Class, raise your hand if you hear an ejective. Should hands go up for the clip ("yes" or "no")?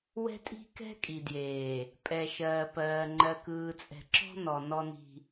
yes